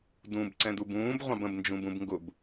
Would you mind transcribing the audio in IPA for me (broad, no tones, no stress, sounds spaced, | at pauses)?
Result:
d ũ b ǀ ɛ̃ d u b ũː b ʁʷ ɑ̃ b ə̃ b n d͡ʒ ũ b ũ b ŋ ɡ ʊ b